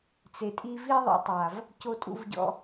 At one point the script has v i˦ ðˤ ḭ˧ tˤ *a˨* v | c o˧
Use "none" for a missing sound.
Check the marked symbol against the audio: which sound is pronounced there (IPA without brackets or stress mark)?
a˨